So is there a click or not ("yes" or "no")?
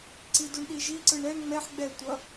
yes